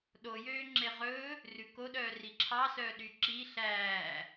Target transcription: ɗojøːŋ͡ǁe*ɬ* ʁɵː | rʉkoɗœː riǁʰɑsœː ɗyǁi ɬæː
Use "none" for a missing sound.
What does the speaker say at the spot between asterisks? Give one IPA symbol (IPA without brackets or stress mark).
none